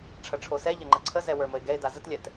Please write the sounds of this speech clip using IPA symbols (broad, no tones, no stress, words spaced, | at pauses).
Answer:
ʈ͡ʂʰɐʈ͡ʂʰosɛʎɐ ŋ͡ǃəǀʰəzɛ wə˞məɪ̯ɡɛɪ̯da zətlʲɛt